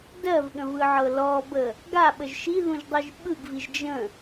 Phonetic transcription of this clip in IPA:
dɜvɠə̃vɯʕɤ lɔbə | ɡaɓəʒ ʃiðũʒdˤiʒ ɓɯɡviʒ d͡ʒə̃

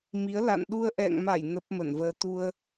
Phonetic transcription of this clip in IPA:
mi˨˦ə̯ la̰˧˨nɗu˧ə̯ʔɛ̰˧˨ŋma˧˩j nə˦˥p̚ mə˧˩nvəː˧ t̪u˧ə̯

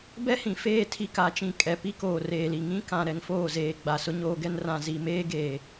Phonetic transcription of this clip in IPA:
bɛ˦hĩ˨feː˦˨ tʰi˦ka˨˦t͡ʃĩ˨ kʼɛ˨ pi˦koː˨reː˨li˨ ŋĩ˦kã˨ ɾɛ˨ŋfoː˦˨zeː˨ ɡ͡ba˨sʊ˦ɲoː˦ɡɛ˦n rã˨zi˨meː˦ɡeː˨

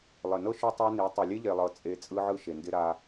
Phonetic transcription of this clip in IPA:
lˠɪ˨nɤ˦ ʃʏ˦tˤa˦ni˨˦ tˤo˨lʲe˦ʎe˨lˠɤ˨ t͡sʼe˦ t͡sʼɯ˦ʕɯ˦ ʃe˨ ndɪ˦ɾa˦

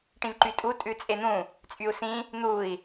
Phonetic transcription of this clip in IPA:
ʈĩvǃytʼu tʼʉt͡sʼen̪ũ | t͡sʼyu̯sĩ | n̪ui̯

